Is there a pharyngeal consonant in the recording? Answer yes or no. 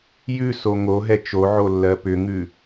yes